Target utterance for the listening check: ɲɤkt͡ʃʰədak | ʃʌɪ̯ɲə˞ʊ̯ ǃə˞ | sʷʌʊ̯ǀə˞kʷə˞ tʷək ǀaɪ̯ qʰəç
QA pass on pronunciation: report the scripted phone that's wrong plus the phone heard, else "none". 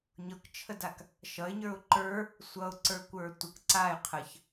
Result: none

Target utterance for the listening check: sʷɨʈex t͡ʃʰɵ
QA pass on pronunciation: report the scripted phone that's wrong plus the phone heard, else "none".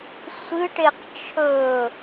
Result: x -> q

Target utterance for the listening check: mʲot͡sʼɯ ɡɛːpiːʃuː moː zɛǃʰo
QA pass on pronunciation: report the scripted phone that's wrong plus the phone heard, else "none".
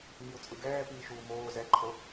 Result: none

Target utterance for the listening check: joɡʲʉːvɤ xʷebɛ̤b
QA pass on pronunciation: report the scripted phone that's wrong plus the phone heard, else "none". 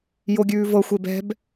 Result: none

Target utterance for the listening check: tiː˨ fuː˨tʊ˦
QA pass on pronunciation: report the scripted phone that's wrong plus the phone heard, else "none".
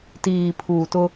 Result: f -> pʰ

